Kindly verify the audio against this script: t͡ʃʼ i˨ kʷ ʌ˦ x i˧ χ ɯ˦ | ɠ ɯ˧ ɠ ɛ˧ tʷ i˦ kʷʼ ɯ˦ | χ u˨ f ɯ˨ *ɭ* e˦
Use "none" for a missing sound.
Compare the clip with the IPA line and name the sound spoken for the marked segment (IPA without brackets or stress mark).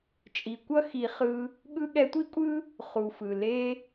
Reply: l